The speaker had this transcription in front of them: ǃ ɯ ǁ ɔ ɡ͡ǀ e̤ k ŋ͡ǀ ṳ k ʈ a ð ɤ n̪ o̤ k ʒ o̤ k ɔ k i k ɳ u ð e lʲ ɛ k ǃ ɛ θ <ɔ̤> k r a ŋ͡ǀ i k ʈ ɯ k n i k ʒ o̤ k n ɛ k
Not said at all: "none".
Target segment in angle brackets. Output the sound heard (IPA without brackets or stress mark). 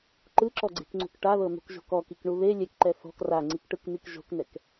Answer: ɔ̤